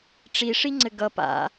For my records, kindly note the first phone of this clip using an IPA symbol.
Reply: ʈ͡ʂ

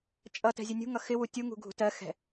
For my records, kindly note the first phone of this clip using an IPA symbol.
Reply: t͡ʃʼ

